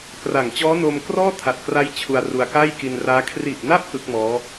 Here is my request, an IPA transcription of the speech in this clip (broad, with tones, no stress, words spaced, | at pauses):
kra˨˩ŋ t͡ɕɔː˦˥noː˧mkrɔː˥˩ tʰa˨˩t̚kra˦˥j t͡ɕʰu˧a̯ru˧a̯ka˥˩j ki˧nraː˦˥ kʰri˨˩ʔna˦˥p̚ ʔɯ˦˥k̚mɔː˦˥